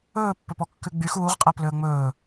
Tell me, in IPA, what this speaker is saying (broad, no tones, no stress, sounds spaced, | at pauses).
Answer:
ɵː pː ɵ p ɔ kː ʉ ɡ͡b y x uː ʁ qʼ æ p l ø ə̯ ŋ͡m ɵː